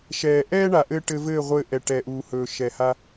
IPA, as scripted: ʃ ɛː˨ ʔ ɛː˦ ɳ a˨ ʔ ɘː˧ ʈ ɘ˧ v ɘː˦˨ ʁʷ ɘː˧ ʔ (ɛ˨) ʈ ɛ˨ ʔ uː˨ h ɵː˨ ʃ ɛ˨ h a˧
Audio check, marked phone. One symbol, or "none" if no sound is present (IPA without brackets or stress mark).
ɛ˨